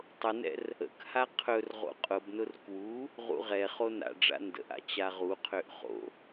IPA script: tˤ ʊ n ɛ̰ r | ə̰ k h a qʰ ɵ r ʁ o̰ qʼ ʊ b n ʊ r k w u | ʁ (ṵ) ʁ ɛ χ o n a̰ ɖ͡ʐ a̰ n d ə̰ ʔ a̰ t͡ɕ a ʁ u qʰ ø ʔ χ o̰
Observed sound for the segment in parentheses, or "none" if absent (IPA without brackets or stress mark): ṵ